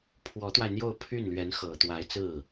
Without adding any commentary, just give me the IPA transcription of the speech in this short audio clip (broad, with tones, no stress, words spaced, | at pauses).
pʰwɔ˧˥t̪wa˧ɪ̯n̪jo˥˧ʊ̯ pʰy˥˩nlɥɛ˧˥n xɤ˨˩t̪wa˧˥ɪ̯t͡sɹ̩˥˩